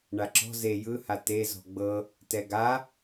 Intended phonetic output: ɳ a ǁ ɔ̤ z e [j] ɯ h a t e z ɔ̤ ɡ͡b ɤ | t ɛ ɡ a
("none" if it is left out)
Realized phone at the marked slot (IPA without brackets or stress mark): j